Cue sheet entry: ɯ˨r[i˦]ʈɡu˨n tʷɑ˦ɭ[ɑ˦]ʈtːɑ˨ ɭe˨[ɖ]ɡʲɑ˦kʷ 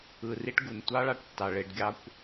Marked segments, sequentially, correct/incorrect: correct, correct, correct

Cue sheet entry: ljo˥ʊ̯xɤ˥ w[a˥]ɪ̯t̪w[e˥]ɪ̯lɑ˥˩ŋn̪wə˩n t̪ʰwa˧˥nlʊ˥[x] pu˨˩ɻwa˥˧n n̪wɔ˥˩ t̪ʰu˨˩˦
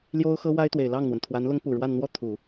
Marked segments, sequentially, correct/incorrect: correct, incorrect, incorrect

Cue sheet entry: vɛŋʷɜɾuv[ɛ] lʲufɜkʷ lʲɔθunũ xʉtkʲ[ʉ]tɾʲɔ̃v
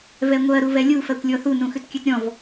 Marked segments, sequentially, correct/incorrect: correct, correct

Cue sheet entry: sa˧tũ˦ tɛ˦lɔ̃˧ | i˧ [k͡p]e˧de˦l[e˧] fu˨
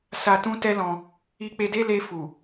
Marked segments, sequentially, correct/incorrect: correct, correct

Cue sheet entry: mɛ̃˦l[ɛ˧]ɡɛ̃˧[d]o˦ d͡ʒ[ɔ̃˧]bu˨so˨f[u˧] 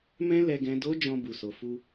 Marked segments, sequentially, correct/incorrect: correct, correct, correct, correct

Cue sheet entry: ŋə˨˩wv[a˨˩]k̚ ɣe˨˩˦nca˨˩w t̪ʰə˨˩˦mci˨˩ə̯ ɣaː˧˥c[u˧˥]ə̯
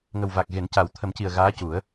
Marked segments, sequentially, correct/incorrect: correct, incorrect

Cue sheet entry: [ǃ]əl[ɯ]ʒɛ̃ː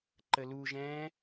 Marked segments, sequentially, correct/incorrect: correct, incorrect

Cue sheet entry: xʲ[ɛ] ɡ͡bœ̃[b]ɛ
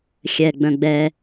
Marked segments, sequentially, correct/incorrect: correct, incorrect

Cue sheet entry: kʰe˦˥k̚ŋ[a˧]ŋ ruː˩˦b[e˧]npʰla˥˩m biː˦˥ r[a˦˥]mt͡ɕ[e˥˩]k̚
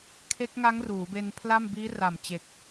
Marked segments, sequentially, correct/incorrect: incorrect, correct, incorrect, incorrect

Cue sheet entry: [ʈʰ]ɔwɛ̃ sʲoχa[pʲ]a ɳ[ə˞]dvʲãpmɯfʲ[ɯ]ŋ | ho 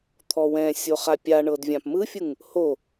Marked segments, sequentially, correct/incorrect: incorrect, correct, incorrect, correct

